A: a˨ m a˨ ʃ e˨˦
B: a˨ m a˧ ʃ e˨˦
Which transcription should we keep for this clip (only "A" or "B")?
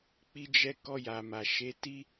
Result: A